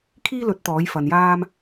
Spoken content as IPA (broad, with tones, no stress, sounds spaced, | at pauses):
kʰ iː˥ l ɵ˨˥ t̚ t̪ ɔː˨˥ j f ɐ˨ n j aː˥ m